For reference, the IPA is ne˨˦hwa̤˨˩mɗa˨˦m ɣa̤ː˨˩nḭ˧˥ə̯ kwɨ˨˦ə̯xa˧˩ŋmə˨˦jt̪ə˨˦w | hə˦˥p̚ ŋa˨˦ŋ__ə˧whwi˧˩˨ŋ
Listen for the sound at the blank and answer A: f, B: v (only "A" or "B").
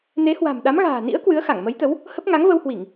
B